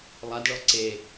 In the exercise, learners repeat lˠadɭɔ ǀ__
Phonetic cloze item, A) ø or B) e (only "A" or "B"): B